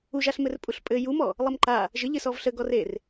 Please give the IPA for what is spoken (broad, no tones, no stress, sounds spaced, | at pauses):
u ʒ a ɬ m ɘ r pʼ u ɬ pʼ ɘ j u m ɔ | lˠ ə m ǃ a | ʒ ə ʎ ɘ s ɔ v ɬ ə ɡ ɔ r e r